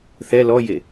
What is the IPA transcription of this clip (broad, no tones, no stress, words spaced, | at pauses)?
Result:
θɛ lɔje